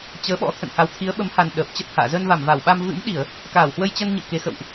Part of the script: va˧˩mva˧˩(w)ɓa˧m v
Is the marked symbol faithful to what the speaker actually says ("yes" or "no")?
yes